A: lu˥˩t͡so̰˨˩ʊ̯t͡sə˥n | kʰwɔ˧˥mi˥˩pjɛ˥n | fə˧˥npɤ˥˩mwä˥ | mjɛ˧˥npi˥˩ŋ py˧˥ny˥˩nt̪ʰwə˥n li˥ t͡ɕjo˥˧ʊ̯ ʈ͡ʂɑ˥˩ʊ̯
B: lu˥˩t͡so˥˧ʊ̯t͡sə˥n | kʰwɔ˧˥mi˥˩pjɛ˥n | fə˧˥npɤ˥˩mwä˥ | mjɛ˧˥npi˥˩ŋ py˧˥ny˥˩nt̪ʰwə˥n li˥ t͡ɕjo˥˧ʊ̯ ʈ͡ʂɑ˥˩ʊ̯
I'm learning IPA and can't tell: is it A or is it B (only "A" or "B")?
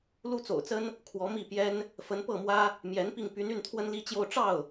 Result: A